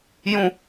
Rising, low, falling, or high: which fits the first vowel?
falling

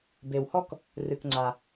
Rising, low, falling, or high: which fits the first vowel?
low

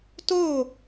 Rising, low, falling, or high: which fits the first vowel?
falling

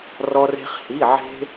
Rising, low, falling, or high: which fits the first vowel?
high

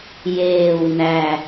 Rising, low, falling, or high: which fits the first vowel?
low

